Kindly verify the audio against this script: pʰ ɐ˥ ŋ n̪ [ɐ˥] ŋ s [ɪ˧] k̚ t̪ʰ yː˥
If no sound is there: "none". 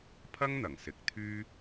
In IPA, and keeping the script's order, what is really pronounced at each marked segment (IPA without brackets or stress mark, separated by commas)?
ɐ˨˩, ɪ˨˥